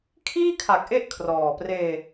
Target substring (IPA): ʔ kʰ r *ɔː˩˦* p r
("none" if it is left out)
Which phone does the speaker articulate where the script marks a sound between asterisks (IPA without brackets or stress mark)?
ɔː˨˩